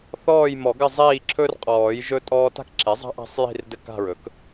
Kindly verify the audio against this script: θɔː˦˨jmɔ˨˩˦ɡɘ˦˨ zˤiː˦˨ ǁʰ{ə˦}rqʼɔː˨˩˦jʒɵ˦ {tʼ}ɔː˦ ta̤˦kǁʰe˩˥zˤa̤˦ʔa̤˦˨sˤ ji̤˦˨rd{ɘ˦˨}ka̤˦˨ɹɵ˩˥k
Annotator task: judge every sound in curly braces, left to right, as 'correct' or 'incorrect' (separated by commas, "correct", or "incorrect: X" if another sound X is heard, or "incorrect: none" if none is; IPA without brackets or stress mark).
incorrect: ɵ˦, correct, correct